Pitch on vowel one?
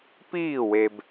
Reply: falling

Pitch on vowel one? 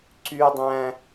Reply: high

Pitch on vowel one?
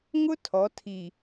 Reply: high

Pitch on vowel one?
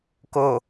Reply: low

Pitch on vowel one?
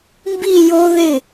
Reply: falling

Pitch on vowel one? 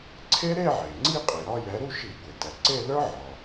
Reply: high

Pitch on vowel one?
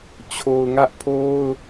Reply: low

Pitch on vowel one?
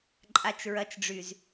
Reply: high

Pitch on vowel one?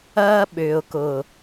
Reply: high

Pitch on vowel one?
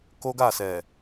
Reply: high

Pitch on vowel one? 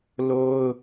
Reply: high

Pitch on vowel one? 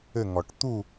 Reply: falling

